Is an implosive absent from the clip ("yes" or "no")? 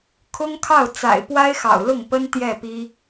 yes